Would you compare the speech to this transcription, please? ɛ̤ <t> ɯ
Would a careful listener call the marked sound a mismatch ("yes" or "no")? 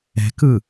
yes